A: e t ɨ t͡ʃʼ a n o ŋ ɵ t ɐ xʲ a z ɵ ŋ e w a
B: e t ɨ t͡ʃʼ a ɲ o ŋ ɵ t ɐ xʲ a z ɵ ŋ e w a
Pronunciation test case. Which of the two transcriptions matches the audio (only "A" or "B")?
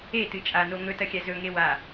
A